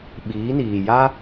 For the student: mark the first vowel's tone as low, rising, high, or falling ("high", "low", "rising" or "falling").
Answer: rising